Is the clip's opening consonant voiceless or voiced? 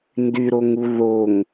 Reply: voiced